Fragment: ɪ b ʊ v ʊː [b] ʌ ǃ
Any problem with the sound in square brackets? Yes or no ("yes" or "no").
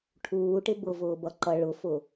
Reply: no